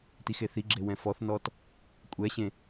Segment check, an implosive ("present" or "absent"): absent